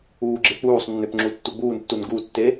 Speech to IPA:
uː ɡ͡ǁ e k͡p uː sˤ nː ø p ŋ͡ǁ u tː u ɡ͡b uː n tː u n ɡ u tː e

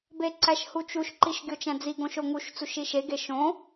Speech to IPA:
b e ǀ æ ʃ h u t͡ʃ u ʃ ǃ i ʃ ɡʲ o t͡ʃ æ̃ d͡z i ɡ õ ʃ o ŋ u ʃ t͡s u ʃ i ʃ e ɡ e ʃ õ

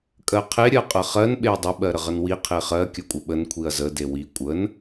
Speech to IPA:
kʼ ɜ qʰ e ɾʲ ɜ qʼ ə χ ɜ n ɓ e ɐ̯ dˤ ə ɓ ɜ ɾ ə ʁ ə n w i qʰ e χ ɜ kʲ ə kʷʼ ə ɓ ə n kʷʰ i ɐ̯ z ə d e w i kʷʼ ə n

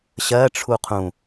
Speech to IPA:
ɕ ɜ ʈ͡ʂʰ u qʰ ũ

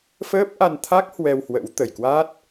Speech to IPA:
f əː˦˥ p̚ ʔ a˧ n t̪ʰ a˦˥ k̚ h w ɛ˧ w h w ə̰˧˥ w t̪ ə˨˩ j k w a˦˥ t̚

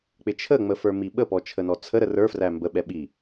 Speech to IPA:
k͡p ɪ t͡ʃʰ ə ŋ͡m ə f ə˞ m i ɓ ə p ɔ t͡ʃʰ ə n ɔ t͡sʰ ə ɾ ə r ə˞ f r æ m b ə ɓ ɛ ɓ i

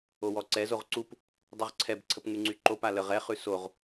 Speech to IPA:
o w ɔ ǀ ɛ z o ʁ ǀ u p | dˤ u ʁ ǀʰ ɛ b ǀʰ ə p ŋ y ŋ͡ǀ y ǃ o p a l ə ʁ ɛ χ ʉ s o ʁ

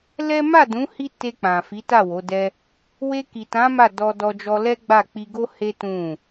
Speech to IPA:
l ɛ˦ m a˦˨ d ũ˨˦ h i˦ t e˧ k͡p ã˨ f i˨˦ t a˦˨ w o˨˦ d ɛ˦ | w e˧ k i˨ t ã˨˦ m a˦˨ d ɔ˧ d ɔ˧ d͡ʒ ɔ˧ l ɛ˦ ɡ͡b a˦˨ k͡p i˧ ɡ o˦ h e˦ t ũ˦˨

